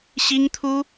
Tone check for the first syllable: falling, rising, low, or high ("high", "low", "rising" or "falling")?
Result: high